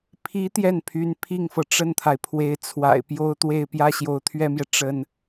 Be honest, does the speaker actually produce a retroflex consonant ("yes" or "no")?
yes